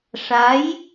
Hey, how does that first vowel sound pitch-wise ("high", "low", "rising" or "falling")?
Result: rising